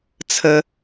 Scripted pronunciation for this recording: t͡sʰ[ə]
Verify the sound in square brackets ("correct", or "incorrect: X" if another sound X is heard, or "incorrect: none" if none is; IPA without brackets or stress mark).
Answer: correct